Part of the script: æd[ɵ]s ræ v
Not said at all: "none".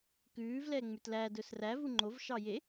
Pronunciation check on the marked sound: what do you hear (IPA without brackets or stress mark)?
ɵ